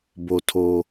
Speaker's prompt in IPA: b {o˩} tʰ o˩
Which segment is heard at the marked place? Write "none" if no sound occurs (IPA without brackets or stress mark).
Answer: o˩